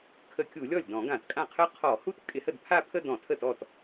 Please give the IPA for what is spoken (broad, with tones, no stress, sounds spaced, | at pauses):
kʰ ə˧˩˧ kʲ u˧˩˧ lʲ ɔ˥˩ lʲ d ɔ̃˧˩˧ ɡ ã˧˩˧ t kʼ ã˥˩ qʰ ə˥˧ qʰ ɔ˧˩˧ h u˥˧ t kʼ ɪ˧˩˧ h ə˥˩ d pʰ a˥˧ pʰ ə˥˧ d ɔ̃˧˩˧ tʰ ə˥˩ t ɔ˥˩ t